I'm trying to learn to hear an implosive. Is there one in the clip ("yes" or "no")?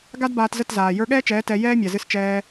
yes